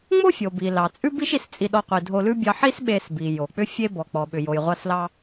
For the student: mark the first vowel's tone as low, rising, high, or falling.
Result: high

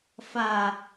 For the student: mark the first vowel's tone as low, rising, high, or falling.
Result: low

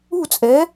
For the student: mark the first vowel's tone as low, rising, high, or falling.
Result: falling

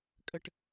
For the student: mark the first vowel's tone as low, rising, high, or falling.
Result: high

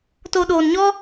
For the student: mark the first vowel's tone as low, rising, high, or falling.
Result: low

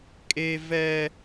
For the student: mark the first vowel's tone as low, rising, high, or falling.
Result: high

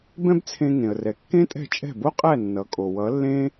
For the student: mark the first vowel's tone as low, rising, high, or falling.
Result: high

